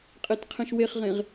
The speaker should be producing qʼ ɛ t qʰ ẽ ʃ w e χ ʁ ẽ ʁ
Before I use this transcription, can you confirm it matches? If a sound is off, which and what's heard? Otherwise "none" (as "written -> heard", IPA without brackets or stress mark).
ɛ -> e